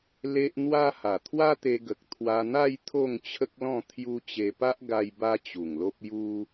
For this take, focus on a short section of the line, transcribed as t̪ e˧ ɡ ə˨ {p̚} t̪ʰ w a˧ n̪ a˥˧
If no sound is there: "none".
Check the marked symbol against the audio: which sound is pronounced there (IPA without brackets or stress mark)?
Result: k̚